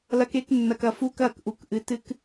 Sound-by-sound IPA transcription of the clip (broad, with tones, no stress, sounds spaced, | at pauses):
l ɐ˦ k e˦ k nː ɐ˨ k ɐ˨ f u˦ k ɐ˦˨ k ʔ u˨ k ʔ ɨ˨ t ɨ˦ k